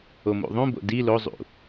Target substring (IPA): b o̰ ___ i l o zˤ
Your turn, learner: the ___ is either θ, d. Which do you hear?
d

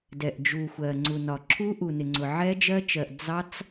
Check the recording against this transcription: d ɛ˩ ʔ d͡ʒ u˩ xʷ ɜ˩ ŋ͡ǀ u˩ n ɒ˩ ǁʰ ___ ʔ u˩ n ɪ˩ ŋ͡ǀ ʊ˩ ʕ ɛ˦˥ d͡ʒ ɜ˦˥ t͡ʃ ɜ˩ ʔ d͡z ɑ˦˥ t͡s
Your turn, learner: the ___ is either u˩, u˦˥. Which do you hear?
u˦˥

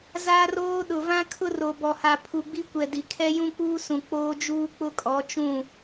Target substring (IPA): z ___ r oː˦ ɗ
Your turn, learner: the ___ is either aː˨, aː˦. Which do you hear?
aː˦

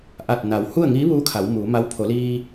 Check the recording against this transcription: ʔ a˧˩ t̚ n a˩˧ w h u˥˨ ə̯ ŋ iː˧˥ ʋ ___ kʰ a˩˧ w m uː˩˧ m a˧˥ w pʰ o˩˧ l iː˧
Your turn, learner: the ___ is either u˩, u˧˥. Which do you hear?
u˧˥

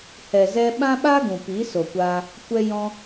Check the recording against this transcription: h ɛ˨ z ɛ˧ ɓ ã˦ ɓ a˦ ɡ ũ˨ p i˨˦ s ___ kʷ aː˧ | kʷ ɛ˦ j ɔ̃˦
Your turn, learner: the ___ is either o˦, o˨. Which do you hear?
o˨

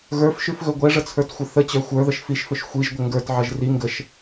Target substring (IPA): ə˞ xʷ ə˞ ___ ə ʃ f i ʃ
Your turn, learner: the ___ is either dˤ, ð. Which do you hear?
ð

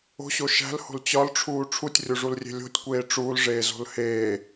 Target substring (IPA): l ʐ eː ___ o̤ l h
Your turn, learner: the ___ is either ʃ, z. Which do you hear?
z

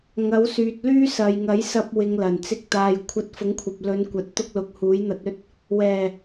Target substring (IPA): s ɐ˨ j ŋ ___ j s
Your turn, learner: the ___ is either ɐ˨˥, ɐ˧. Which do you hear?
ɐ˨˥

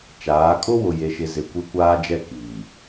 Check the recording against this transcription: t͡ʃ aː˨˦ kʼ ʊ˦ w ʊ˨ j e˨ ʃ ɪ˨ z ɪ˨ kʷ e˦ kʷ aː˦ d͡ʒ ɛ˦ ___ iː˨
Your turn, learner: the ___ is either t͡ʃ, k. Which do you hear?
k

